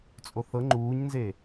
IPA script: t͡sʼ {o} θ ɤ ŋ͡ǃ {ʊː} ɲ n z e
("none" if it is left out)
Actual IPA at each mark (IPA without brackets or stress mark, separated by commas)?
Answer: o, uː